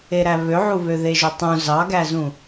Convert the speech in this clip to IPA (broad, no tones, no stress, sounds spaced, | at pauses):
e ɾ æ β ø ʕ u β ø ð e ʒ ø tˤ ũ z ɑ ɡ æ z ũ